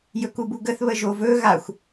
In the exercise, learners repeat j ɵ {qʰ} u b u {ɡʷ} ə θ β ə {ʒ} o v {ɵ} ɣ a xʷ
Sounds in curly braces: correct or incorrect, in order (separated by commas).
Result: incorrect, incorrect, correct, correct